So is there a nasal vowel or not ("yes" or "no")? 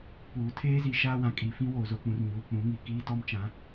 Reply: yes